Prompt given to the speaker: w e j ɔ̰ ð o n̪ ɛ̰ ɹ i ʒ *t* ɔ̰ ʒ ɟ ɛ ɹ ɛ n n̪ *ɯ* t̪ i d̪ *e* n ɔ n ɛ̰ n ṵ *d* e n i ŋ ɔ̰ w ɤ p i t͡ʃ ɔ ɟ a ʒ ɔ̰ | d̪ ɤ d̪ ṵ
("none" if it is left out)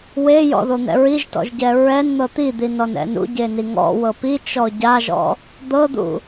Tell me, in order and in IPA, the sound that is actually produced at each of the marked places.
t, ɤ, i, ɟ

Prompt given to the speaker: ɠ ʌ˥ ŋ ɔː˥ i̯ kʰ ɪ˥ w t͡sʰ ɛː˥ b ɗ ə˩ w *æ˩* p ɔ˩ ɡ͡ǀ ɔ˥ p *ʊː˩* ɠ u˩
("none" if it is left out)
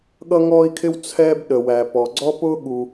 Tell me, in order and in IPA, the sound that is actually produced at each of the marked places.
æ˩, ʊː˥

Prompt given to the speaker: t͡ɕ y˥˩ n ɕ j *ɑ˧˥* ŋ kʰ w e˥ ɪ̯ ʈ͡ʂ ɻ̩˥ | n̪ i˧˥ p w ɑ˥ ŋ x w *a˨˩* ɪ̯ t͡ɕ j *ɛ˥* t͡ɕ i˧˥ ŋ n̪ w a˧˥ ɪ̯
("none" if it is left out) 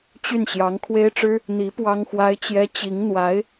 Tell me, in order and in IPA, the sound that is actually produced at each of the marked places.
ɑ˧˥, a˥, ɛ˥

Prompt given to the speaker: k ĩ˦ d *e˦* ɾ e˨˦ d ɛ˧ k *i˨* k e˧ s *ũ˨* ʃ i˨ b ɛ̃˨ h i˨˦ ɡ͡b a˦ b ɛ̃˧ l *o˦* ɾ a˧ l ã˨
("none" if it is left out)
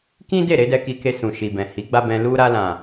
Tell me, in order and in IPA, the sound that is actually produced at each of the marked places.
e˦˨, i˧, ũ˨, u˦

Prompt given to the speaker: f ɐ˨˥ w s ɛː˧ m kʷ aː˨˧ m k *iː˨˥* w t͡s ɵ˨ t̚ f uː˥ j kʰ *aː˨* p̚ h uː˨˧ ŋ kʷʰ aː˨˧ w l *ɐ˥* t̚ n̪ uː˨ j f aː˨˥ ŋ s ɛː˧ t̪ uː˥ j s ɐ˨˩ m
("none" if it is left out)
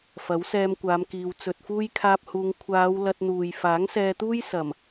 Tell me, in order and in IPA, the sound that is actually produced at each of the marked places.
iː˨, aː˧, ɐ˧

